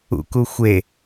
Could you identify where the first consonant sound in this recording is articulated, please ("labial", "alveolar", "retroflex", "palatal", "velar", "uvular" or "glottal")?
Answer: velar